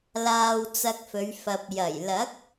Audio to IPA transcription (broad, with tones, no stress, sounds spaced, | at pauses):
l aː˧ w t͡s ɐ˧ k̚ f ɵ˨˧ ɥ f ɐ˨ p̚ j ɐ˨˩ j l ɐ˨˥ k̚